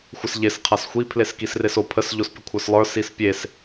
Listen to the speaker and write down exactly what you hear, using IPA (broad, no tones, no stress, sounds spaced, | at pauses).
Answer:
xʷ ə s ʎ e s qʰ a s xʷ i pʰ l e s k i s r e s o pʰ ə s ʎ o s pʲ ə kʷʰ ə˞ s lˠ ə˞ s i s pʲ e s